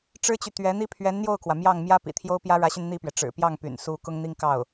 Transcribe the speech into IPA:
ʈ͡ʂ ɻ̩˥ t͡ɕ y˨ t̪ ɥ ɛ˧˥ n̪ i˥ pʰ ɥ ɛ˧˥ n n̪ j o˥˩ ʊ̯ k w ä˩ m j ɑ˥˩ ŋ m j ä˥ p ḭ˨˩ t̪ʰ j o˥ ʊ̯ p j ä˥ ɻ ä˧˥ ɕ y˧ n n̪ i˥˩ p ɥ ɛ˩ ʈ͡ʂ ɻ̩˨˩ p j ɑ˥˩ ŋ p y̰˨˩ n s u˧˥ k ʊ˥ ŋ n̪ i˥ ŋ k ɑ˥˩ ʊ̯

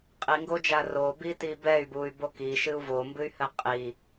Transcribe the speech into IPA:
qʼ i ŋ ɡ o d͡ʒ a r o b i t i b ɛ y̯ b u y̯ b o k i ʃ ɨ u̯ v o m b ɨ y̯ h ɘ qʼ i

